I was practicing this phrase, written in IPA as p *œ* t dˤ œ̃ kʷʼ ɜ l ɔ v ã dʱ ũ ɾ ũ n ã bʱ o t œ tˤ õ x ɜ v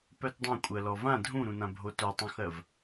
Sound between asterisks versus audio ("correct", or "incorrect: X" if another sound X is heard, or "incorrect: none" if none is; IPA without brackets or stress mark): correct